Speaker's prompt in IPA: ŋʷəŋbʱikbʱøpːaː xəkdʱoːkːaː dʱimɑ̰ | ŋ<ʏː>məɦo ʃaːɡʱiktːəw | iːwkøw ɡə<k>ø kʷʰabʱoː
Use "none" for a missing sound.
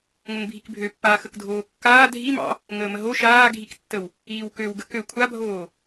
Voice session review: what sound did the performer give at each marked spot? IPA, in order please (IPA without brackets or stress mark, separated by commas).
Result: əː, k